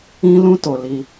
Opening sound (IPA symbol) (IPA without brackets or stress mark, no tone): ĩ